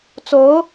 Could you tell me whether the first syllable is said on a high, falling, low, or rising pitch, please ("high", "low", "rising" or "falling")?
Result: rising